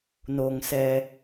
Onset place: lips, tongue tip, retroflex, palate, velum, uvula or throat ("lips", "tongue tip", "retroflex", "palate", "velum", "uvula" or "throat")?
tongue tip